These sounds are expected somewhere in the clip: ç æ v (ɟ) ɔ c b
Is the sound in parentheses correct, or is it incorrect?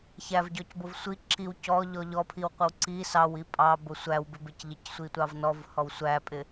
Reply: correct